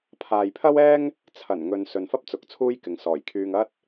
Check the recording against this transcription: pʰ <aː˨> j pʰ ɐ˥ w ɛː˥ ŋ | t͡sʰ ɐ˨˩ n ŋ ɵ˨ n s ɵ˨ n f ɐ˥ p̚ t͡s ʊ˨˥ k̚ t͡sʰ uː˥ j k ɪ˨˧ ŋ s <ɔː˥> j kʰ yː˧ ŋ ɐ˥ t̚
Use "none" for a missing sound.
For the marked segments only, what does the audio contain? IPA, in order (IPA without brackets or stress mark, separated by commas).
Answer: aː˨, ɔː˨˩